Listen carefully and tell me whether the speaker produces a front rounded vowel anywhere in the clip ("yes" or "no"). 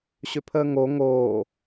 yes